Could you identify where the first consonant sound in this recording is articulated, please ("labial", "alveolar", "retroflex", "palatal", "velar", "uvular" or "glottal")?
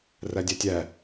alveolar